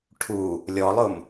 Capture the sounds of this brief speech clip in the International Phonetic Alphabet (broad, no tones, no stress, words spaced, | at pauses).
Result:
ʈʰu | lʲɔlˠʊm